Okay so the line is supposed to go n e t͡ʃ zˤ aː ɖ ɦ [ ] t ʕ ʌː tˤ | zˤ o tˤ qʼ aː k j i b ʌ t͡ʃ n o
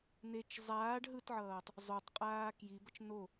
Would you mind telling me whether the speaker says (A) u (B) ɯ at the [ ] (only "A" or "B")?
B